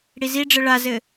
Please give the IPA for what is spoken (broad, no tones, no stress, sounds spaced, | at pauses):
ɽ i z i ɖ͡ʐ ɘ ɭ a z ɘ